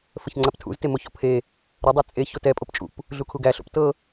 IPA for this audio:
f ə ç ŋ͡ǀ a p tʰ ṵ z t e m o ç o̰ pʰ e | ɾ ə dˤ e t͡sʼ e ç o t ɛ pʼ o p t͡ʃʼ ṵ p | ɮ u kʰ u ɡ æ ɬ o̰ p t ɤ

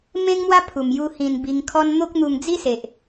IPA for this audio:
m ẽ˦ ŋ m w a˦ pʰ u˨˩ m j u˧ h ĩ˧ n b i˧ ŋ kʰ ɔ˦ n n̪ o˦ k̚ n̪ u˧ ŋ d͡z i˦ s e˨ ʔ

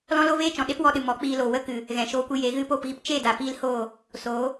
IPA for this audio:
l ɔ̃˦ l o˦ v eː˦ t͡ʃ ɔ̃˨ ɗ e˦ p w ɔ˧ ɗ ɨ˨ m ɔ˨˦ k͡p iː˧ l o˨ w ə˦ k ɨ˨ | ɣ ɛ̃˨ ʃ oː˧ kʷ i˧ j e˨˦ ɣ ɨ˧ p oː˦˨ p ɣ i˧ p t͡ʃ e˦˨ d a˨ p iː˦ l h oː˦˨ | s oː˨˦

